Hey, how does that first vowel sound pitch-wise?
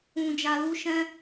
low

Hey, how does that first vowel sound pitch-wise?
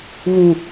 low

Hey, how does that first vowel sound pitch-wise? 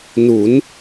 rising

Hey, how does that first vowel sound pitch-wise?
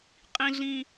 high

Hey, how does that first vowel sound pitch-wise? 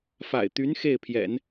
low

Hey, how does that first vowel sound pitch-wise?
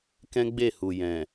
high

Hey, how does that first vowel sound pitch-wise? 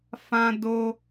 high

